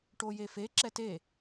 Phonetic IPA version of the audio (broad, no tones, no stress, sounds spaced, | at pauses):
ʈ o j e f e ǁ ɛ t e